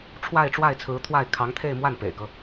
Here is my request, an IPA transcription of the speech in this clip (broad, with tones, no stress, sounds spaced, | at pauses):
ʈ͡ʂʰ w a˥˧ ɪ̯ ʈ͡ʂ w a˥˩ ɪ̯ t͡sʰ ɹ̩˧˥ t̪ʰ w a˥˩ ɪ̯ kʰ ɑ˧˥ ŋ t̪ʰ e˥˧ ɪ̯ m w a˥˩ n p ḛ˨˩ ɪ̯ k ɤ˦